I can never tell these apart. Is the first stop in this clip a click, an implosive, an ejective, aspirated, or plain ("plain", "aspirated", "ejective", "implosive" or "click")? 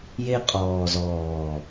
ejective